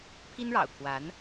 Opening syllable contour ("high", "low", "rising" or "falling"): high